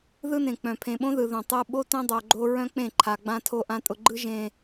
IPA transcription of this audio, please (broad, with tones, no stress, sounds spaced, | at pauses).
ð ɯ˦ n ẽ˨ k͡p œ̃˨ pʰ ẽ˨ ɓ õ˦ ð ɯ˨ ð õ˨ tˤ ɯ˧ ɓ o˦ t œ̃˦ dˤ o˨ ɡ͡ǃ o˧ ɹ œ̃˦ k͡p ẽ˦˨ ǃʰ a˨ ɡ͡b ã˧ tʰ o˧ ʔ ã˧ tʼ ʊ˧ ɡ͡ǃ ɯ˦ ʒ ẽ˧